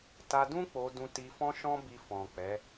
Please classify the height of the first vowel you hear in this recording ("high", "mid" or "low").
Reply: low